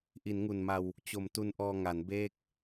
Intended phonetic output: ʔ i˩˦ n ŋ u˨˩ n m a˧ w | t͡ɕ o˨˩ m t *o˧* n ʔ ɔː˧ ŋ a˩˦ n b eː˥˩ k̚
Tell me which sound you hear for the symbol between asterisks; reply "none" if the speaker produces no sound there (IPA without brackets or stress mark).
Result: u˧